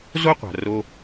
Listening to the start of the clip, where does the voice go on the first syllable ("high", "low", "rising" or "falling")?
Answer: high